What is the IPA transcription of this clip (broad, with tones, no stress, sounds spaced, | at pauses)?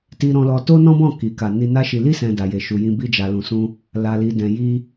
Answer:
t i˧ ɾ ɔ̃˧ l ɔ˧ t o˦ n ɔ̃˦ b ɔ̃˦˨ k i˨ k a˨ n i˧ n a˦ ʃ i˧ l i˦ s ɛ̃˧ d a˨ j e˨ ʃ u˨ j ĩ˧ b i˧ d͡ʒ a˨ l ũ˨ s ũ˧ | l a˨ l i˨ d ɛ̃˨ j i˧